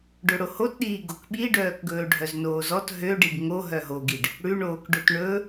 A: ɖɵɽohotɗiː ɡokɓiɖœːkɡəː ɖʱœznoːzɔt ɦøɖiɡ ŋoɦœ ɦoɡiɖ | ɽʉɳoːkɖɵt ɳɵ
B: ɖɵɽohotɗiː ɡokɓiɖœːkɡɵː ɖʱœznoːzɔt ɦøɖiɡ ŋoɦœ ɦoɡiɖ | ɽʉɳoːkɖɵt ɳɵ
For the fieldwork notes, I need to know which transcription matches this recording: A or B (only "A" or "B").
B